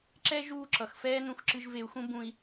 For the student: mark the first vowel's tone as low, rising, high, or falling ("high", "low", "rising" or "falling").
high